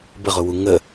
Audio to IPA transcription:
bəʁʊwu ŋə

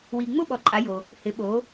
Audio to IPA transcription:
wi˨ŋ͡mʊ˥˧ɓɔ˨ ǃʼa˨˦jo˨ | hɪ˨˦ɓo˨˦

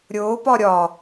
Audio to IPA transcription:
ɾʲʊː pɒɾʲɒ

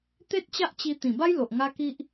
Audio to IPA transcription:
t̪e˦t̚t͡ɕa˦ʔt͡ɕi˧ t̪ĩ˨˩ba˦jlo˨ʔ ŋa˦ki˦ʔ

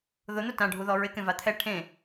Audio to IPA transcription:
ðʊn̪ʊ tãɖʱuðɔ ɹɪkẽva t̪ʰɛ ʈʰẽ

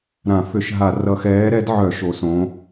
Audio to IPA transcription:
ɾã˧˩˧ fʏ˧˩˧ʃɦa˧˩˧ rʌ˧˩˧xɛː˨˥ɾɛ˨˥dʕœ˧˩˧ ʃo˨˥sõ˨˥

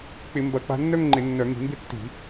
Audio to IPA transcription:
k͡pɪ˧˩˧mbɐ˧˩˧k͡pa̤˧ nːœ˥˧ŋŋ͡ǃɪ˧˩˧ nːœ˧˩˧ŋi̤˧˩˧mbɪ˥˧ tːi̤˧˩˧

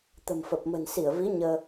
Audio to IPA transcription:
t̪ə̤˨˩mfə˨˩p̚ mə̤˨˩nsi˧˩ə̯ vi˨˦ ɲəː˧

